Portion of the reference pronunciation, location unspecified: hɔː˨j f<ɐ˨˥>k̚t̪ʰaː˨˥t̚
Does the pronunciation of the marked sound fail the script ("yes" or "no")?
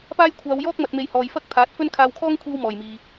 yes